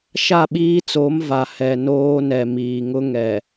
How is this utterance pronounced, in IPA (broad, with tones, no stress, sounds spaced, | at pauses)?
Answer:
ʃ a˦˨ ɓ iː˦ t͡s o˨˦ m v a˨ h ɛ˨ n oː˦ n ɛ˨ m iː˨ ŋ ʊ˦ ŋ ɛ˨